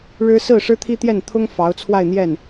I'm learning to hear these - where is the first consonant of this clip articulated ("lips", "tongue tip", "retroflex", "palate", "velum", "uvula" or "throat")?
retroflex